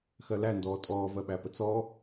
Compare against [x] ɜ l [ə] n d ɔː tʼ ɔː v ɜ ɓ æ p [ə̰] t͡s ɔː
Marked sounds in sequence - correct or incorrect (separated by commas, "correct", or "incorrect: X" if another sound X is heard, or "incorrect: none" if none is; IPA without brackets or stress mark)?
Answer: correct, incorrect: æ, incorrect: ə